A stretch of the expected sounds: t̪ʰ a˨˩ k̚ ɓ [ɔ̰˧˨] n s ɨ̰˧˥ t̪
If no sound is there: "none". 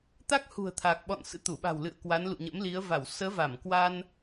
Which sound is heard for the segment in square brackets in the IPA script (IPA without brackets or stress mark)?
ɔ̰˧˨